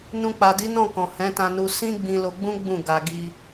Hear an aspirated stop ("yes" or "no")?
no